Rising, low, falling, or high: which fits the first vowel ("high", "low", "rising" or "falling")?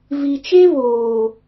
low